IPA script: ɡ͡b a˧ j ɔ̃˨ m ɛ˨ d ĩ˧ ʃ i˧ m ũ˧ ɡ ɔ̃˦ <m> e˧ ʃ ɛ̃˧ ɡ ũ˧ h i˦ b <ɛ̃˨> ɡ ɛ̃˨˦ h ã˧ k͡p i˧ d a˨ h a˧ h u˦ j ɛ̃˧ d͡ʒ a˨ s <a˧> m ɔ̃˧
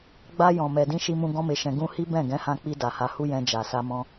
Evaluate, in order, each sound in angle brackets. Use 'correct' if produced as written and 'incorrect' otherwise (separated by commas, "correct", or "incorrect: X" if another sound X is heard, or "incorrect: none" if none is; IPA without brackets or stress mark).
correct, incorrect: ɛ̃˦˨, correct